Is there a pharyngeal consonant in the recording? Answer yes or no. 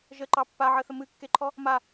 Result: yes